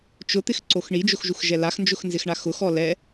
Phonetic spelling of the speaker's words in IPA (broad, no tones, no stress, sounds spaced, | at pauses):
t͡ʃ ʊ t̪ ɪ x ǀ o x ɳ i d͡ʒ ʊ x ʒ u x ʒ ɛ l a x n d͡ʒ ʊ x n z ɪ x ɳ a x ʊ x ɔ l ɛ